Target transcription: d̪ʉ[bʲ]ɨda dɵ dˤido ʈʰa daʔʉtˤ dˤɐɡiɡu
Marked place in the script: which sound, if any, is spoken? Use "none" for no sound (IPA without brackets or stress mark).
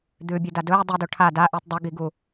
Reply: bʲ